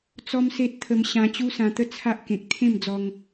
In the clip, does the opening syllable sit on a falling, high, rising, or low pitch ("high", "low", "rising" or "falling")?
high